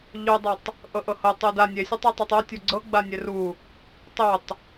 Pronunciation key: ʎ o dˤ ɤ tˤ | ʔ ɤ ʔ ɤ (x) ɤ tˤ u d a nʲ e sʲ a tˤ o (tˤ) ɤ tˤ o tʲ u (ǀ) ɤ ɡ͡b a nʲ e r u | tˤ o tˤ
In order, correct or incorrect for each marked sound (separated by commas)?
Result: incorrect, correct, incorrect